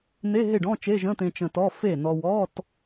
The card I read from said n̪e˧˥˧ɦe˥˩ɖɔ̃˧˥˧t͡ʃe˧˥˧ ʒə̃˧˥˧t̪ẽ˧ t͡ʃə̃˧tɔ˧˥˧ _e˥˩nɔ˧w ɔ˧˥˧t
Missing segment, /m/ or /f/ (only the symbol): f